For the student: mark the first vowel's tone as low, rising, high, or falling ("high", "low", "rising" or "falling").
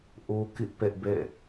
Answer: high